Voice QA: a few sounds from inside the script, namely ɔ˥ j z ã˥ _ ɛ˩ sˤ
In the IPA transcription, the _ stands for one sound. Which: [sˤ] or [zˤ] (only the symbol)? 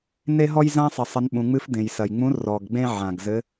sˤ